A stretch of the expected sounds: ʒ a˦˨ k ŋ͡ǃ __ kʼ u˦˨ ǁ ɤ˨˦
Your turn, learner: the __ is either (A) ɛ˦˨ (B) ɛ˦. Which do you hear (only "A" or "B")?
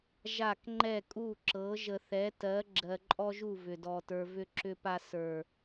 A